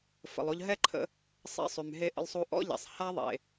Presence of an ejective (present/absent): absent